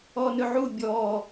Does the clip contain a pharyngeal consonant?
yes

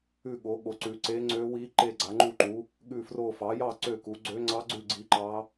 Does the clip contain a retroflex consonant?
no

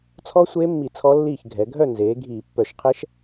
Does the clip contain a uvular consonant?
yes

